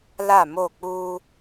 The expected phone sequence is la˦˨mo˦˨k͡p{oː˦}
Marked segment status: incorrect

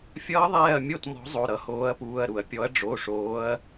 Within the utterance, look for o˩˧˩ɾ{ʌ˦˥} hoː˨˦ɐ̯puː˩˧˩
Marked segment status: incorrect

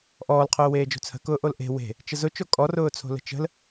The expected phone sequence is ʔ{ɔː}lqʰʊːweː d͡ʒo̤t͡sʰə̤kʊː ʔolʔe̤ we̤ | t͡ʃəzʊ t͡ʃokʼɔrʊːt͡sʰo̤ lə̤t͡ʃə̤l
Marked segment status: correct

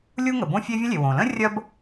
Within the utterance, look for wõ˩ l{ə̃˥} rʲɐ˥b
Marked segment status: correct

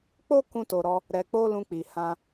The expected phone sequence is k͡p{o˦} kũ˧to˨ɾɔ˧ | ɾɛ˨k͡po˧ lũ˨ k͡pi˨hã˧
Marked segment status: correct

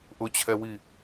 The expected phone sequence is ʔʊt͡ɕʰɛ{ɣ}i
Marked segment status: incorrect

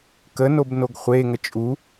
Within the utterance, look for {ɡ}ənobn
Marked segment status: incorrect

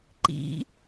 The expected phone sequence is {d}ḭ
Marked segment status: incorrect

